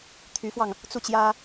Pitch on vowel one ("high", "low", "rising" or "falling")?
rising